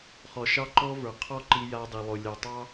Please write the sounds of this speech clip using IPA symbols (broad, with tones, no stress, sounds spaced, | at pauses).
χ ɔ˨ ʃ ɑ˦ ǃ ɔ˦ v ə˞˨ qʰ ɔ˦˨ ǃ i˦ j a˦ dˤ i˨ lˠ o˨ lʲ ɑ˨ tˤ ɑ˦